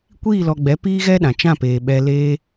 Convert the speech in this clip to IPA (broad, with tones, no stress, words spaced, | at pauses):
kʷiː˦˨lɔ˨ɡ͡bɛ˨˦ piː˦ɣɛ˦ɗã˨ t͡ʃã˦˨peː˨ ɓɛ˧leː˦